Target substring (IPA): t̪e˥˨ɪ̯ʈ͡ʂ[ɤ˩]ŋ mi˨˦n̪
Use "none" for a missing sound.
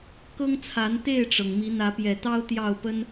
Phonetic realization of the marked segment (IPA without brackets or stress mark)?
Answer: ɤ˩